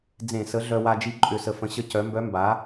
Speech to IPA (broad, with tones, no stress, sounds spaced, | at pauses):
d͡z ẽ˧˩˧ s ə˩˥ ɮ œ˧ w a˧ d͡ʒ i˧ ǃʼ ʏ˧˩˧ s ə˨˩ f ə̃˩˥ ɕ ə˧˥ c œ˩˥ m b œ˧˥ m b a˩˥